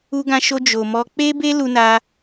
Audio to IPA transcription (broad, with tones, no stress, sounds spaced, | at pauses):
u˧ ɡ ã˧ ʃ o˧ d͡ʒ o˨ m ɔ˧ k͡p e˦ b e˦ l u˧ n a˧